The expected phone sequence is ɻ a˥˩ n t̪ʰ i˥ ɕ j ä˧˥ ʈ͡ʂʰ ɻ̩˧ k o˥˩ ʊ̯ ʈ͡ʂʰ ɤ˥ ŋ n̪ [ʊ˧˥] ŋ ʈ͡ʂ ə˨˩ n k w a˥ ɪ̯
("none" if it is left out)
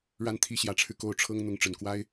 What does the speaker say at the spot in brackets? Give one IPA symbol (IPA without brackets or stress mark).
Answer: ʊ˧˥